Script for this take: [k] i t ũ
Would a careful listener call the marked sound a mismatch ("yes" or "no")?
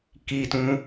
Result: no